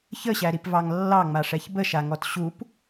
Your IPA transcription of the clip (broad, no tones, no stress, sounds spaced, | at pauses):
ç ə ɕ æ ɾ i p v ɑ ŋ lː ɑ ŋ͡m a ʂ ɛ ç b ə ʃ a ŋ ɔ t ɕ u p